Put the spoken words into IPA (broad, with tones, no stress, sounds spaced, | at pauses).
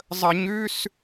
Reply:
zˤ ə˧˩˧ ɲ ʉ˧˥˧ s